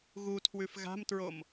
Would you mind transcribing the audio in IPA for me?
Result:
ɣutʰwʉf ɣa̤mtɹom

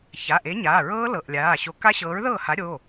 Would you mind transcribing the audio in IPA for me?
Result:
ça˩˧˩ʔe˨˥ɲaː˩˧˩ ɹɤː˦˥lɤ˩˧˩ʔ lʲaː˩˧˩ɕo˨˥ ka˦˥ɕɤː˨˥ɹðɤː˥˩ha˨˥ ɾʲo˩˧˩

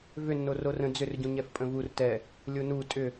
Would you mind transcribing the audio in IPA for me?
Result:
vʏnːor orə̃ d͡zʏrɟũɲɛf pʼə̃vur tɛ | lʲonu tʼʏ

